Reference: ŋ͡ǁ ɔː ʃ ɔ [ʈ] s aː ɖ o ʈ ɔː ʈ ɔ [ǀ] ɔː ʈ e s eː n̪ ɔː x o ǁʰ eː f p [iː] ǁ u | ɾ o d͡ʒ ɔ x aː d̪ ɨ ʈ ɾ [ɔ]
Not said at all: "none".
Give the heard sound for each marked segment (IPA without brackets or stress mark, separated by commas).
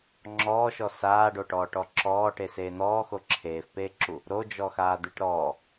none, ǁ, eː, ɔː